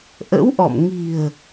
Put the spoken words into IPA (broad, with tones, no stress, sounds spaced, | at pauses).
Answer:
ʔ ə̰˧˥ w ʔ ɔ̰˧˨ m ŋ i̤˨˩ ə̯